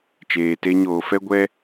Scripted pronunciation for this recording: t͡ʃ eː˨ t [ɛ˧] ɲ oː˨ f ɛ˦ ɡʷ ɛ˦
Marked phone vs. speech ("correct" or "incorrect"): incorrect